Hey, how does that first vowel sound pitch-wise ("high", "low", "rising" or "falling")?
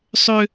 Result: high